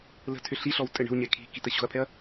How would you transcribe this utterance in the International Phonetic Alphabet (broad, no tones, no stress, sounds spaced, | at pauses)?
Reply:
l ə̤ tʰ ʏ ɬ i ɬ ɔ w tʼ ɘ ɳ ə̤ w ɲ ɛ kʰ i̤ k i t ə ɕ o̤ ɐ̯ pʰ ɛ ɐ̯